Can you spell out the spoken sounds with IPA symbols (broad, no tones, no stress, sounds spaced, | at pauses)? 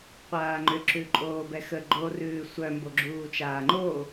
qʷ aː ŋ͡ǃ ʏ ǁ ʉ ǃʼ oː b ɛ x ə ɡ͡ǃ o r ʉː sʷ œ m b o ɡ͡ǁ uː t͡ʃ aː ŋ͡ǃ o